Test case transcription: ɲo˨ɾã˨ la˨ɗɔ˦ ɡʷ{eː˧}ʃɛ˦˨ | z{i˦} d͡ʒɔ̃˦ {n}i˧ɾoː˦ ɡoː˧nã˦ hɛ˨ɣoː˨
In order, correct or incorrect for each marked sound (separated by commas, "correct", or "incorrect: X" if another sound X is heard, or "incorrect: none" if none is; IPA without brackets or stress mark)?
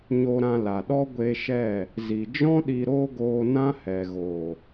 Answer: incorrect: e˧, incorrect: i˨, incorrect: ɗ